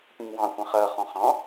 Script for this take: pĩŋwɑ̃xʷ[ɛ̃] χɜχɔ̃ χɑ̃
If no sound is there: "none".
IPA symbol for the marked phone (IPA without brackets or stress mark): ɛ̃